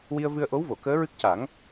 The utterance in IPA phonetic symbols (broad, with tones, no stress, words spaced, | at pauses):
wi˧ə̯vɨ˧ə̯ʔo˧˥w vo˨˩˨kəː˧˥ɹɨ˦˥k̚ ca˨˩˦ŋ